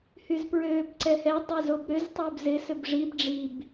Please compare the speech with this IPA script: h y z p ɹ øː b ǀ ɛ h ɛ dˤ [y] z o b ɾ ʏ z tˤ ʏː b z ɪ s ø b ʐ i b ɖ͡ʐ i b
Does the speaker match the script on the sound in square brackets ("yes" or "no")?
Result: no